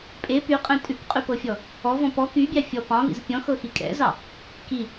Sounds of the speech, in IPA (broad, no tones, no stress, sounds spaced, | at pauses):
pʼ e p y qʼ ẽ tʼ ʉ k qʼ y p ɤ fʲ ɔ | ɔ v ɔ̃ p ɔ k y bʲ ɑ fʲ ɔ p ɑ̃ v ḭ z pʲ ɔ̃ x ɤ x i kʼ ɛ̰ z ɑ | k i